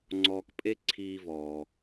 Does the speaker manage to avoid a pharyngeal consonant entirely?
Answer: yes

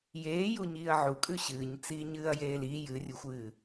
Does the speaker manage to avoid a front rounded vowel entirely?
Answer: yes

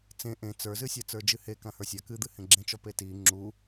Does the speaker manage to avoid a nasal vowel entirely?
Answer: no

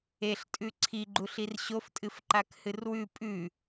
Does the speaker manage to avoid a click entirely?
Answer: no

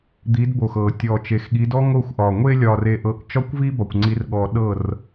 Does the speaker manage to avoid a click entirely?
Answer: no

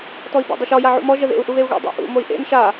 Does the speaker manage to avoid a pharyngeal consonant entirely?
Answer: no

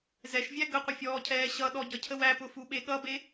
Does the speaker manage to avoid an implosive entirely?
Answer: no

